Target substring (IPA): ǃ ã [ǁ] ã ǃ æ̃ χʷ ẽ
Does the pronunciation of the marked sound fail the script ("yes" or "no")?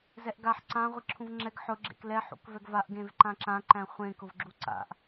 no